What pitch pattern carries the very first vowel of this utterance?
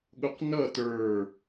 high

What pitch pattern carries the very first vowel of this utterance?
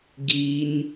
low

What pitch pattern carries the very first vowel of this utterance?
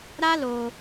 high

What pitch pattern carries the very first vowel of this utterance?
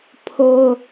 high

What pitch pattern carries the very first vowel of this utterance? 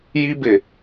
high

